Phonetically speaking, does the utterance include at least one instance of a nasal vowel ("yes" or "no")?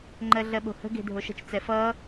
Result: no